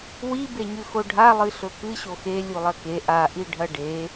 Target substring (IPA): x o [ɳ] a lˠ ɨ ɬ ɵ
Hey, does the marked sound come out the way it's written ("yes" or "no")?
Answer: no